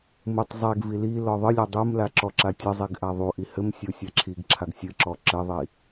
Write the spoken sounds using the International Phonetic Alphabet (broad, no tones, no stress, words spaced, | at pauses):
mutˤ zˤɛɡ vililɔ ðˤɨlʲɐ dˤumla ǁɔǁatʲɐzˤiɡ ʔaðˤuʔi hɘmsʲo sʲaǁʰiɡǁʰaɡ sʲɨǁɔ ǁɘðˤi